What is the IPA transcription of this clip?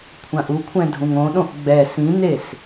kʷʰãʔukʷʰɛ̃ dʱũŋõɗõʔ ɡ͡bɛ sĩnes

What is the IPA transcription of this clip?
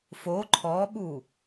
fo ǃʰɔɓu

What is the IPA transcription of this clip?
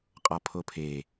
qʼɒpʰopʰe

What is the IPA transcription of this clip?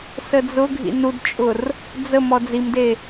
səd͡zʊɡʱḭ nudt͡ʃʼʊr | d͡zə mɔd͡zimde

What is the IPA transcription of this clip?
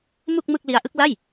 mu˥˩k̚mɯ˥˩k̚li˦˥a̯ʔɯ˦˥k̚ la˥˩j

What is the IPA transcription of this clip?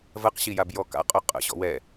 vɜqɕijabjɔ ka̰qʼʊ qʼə̰ ɕɔ̰wɛ

